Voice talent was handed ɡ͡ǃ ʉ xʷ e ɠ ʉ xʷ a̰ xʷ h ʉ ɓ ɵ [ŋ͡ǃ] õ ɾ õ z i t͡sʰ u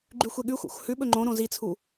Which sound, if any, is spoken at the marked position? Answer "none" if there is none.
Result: ŋ͡ǃ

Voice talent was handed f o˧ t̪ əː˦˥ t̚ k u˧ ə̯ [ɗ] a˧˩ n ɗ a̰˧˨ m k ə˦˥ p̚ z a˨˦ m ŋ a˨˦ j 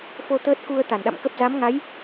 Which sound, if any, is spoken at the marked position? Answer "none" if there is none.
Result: t̪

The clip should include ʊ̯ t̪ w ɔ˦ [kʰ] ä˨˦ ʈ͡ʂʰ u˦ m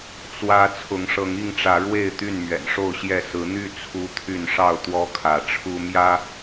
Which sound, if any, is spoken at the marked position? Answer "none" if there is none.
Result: kʰ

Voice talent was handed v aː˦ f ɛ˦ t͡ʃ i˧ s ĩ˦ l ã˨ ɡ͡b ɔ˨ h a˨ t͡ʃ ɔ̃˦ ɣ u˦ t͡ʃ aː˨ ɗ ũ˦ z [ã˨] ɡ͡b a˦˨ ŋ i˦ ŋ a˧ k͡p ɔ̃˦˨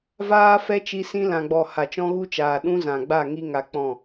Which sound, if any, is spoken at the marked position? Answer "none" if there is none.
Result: ã˨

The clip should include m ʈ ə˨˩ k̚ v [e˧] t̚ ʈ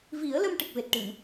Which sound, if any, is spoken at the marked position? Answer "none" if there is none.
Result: e˨˩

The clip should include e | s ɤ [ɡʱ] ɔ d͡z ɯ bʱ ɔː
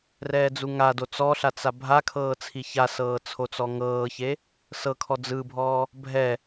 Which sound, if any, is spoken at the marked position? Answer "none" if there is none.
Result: kʰ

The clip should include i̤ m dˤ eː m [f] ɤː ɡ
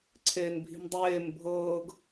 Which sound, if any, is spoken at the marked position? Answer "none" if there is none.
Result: bʱ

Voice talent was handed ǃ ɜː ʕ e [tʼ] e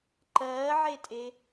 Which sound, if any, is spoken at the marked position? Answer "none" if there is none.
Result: tʼ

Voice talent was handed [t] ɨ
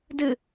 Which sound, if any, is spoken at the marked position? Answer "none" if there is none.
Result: d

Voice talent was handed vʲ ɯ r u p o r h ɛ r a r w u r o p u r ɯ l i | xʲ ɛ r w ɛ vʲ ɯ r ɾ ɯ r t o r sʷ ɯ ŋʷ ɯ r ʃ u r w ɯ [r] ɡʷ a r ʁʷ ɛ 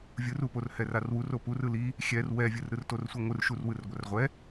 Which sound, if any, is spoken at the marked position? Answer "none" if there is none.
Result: r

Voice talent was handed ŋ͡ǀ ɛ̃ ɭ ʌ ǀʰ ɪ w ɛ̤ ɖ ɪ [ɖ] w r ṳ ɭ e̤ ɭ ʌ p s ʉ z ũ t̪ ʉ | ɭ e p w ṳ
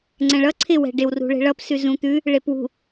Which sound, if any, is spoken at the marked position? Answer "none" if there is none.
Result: none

